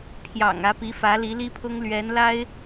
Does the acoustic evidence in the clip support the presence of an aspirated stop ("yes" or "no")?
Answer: yes